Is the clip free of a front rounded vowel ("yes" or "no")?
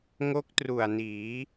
yes